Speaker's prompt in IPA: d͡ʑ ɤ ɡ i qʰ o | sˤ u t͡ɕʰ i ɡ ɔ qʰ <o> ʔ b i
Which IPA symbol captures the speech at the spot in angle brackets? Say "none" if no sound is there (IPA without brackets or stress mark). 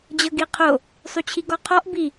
ɔ